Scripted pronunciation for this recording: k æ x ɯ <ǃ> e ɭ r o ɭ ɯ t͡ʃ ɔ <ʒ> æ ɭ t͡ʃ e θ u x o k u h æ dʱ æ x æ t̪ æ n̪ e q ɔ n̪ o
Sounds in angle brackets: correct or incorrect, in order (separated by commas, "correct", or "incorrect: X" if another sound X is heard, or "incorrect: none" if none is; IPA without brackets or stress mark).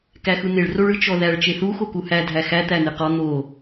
incorrect: n̪, incorrect: ð